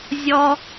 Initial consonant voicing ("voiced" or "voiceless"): voiced